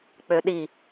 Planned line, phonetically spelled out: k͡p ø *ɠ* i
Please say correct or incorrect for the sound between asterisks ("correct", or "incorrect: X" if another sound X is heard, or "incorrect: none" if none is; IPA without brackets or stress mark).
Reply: incorrect: ɗ